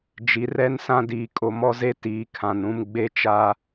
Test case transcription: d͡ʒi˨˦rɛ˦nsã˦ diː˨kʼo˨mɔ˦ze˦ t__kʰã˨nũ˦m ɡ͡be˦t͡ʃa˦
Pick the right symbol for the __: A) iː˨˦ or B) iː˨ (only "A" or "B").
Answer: A